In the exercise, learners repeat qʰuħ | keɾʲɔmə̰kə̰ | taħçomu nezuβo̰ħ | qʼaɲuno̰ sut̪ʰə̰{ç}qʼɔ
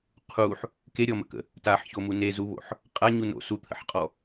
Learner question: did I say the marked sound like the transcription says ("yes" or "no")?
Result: no